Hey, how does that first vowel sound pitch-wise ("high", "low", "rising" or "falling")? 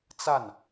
falling